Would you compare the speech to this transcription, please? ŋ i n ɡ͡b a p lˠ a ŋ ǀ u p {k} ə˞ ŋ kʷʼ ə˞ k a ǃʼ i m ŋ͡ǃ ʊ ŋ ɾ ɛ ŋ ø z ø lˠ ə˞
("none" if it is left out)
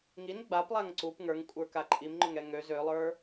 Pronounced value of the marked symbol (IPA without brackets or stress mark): ŋ